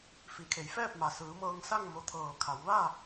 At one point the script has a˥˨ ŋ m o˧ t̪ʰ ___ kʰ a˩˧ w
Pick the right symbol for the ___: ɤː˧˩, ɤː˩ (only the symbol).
ɤː˧˩